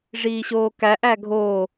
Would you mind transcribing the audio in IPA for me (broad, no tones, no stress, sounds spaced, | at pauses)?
ʐ iː ɕ oː k æ ʔ æ ɡʱ oː